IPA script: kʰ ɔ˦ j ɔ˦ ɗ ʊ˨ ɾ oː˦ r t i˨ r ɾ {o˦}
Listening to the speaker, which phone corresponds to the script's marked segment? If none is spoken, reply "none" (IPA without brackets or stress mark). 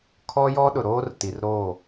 o˦˨